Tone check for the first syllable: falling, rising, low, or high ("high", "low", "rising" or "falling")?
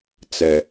low